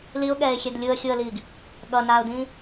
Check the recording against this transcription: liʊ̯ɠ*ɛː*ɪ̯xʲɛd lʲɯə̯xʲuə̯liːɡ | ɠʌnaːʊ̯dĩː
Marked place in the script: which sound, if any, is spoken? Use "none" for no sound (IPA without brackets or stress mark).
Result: ɛː